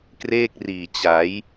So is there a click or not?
no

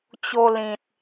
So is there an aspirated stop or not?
no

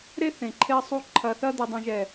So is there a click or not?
yes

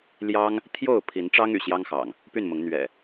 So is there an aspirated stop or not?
yes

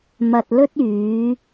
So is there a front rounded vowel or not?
yes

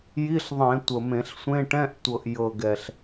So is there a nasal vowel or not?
yes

